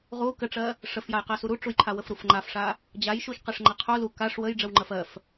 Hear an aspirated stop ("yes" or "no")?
yes